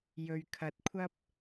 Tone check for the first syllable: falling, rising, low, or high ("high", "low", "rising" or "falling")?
low